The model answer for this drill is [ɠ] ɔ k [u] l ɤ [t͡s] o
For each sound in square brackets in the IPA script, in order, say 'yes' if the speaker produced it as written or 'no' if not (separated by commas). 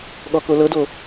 yes, no, no